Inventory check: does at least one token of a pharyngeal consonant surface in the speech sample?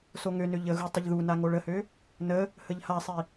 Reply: no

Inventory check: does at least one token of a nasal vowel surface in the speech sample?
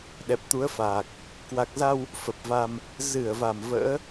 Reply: no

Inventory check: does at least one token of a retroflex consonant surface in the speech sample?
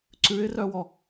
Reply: no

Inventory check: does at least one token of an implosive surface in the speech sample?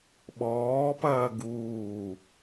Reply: yes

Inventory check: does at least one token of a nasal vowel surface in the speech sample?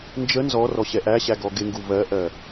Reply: no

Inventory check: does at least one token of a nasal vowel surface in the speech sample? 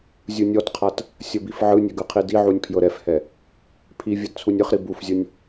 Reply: no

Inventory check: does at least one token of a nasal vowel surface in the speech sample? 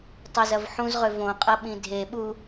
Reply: yes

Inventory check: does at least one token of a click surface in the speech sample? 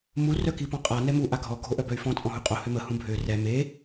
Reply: no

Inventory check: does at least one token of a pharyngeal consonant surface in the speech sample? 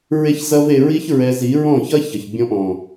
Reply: no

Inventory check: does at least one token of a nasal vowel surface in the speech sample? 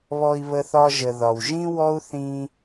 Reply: yes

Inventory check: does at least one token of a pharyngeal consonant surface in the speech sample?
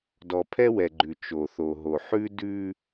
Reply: yes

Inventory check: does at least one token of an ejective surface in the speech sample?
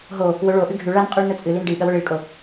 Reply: yes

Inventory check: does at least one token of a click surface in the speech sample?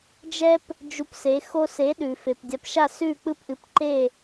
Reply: yes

